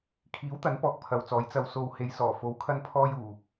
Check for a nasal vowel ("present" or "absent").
absent